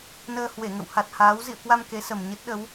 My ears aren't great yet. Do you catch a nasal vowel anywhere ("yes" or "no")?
no